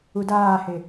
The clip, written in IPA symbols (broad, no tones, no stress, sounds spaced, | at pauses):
u d aː h e